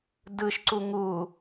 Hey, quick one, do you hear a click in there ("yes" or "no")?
yes